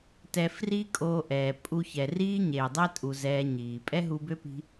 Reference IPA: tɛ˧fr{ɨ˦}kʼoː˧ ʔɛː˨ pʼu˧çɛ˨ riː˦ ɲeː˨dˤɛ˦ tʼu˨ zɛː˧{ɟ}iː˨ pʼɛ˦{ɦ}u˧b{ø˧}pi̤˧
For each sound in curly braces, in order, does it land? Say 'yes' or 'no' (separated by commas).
no, no, yes, no